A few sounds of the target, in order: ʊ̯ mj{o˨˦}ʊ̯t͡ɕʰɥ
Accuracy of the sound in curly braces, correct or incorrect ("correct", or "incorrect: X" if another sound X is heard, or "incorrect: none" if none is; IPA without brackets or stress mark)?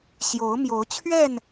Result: correct